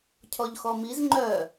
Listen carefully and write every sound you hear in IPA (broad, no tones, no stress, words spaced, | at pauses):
cʰɔʎxɔmiz ŋ͡ǃœ